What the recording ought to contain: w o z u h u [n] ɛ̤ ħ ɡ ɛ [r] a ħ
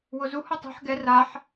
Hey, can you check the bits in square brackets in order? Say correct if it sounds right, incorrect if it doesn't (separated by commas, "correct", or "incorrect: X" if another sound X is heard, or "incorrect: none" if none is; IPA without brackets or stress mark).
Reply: incorrect: tˤ, correct